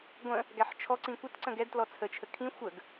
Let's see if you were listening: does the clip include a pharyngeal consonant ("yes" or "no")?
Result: yes